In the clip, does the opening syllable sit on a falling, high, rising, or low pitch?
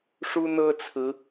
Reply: high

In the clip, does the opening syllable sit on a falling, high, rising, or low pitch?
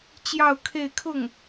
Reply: falling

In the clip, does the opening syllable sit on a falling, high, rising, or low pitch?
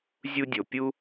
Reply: high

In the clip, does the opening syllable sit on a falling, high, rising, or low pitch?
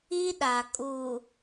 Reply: high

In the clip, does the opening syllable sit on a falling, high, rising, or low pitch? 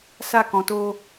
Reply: falling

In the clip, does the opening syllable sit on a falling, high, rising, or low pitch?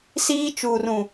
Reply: high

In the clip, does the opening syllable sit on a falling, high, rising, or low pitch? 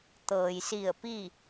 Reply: low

